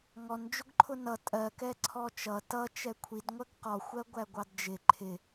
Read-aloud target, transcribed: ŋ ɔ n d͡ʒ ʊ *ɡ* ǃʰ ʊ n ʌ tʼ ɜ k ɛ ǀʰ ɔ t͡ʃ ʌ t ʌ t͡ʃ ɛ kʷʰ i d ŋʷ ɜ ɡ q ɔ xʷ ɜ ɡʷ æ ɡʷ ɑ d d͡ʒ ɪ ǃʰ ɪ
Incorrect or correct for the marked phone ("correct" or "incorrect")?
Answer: correct